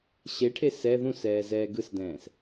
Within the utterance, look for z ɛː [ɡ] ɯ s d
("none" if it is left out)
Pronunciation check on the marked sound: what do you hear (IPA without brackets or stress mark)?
ɡ